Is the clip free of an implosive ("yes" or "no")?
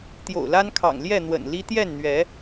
yes